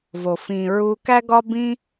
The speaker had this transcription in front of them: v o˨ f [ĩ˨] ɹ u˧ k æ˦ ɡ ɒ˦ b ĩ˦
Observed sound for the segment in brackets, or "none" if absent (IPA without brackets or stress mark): ĩ˨